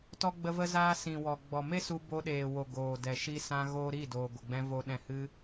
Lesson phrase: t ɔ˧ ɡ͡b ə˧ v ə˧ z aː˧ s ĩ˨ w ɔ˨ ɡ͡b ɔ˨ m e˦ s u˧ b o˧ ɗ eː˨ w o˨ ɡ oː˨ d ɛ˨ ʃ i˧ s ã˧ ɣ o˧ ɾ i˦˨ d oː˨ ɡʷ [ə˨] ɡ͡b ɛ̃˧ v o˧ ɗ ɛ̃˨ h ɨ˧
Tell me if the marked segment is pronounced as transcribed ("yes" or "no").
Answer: yes